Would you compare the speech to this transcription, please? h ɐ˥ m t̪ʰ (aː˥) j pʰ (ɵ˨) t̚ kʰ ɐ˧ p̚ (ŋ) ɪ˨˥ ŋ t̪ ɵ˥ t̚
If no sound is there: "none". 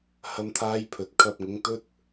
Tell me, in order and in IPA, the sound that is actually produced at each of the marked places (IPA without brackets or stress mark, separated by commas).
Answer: aː˥, ɵ˨, ŋ